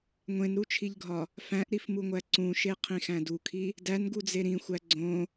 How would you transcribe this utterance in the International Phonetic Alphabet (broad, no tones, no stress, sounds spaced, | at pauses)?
ŋʷ ẽ n ɾ u t͡ʃʰ i ʎ ɡʱ ɒ | f æ̃ ʔ ɾ i f m u ŋʷ æ ǀ ũ ʃ e qʰ ĩ x æ̃ d u kʰ i | d æ n ɡ u d͡z e ɾ ĩ xʷ æ ɡ͡ǀ õ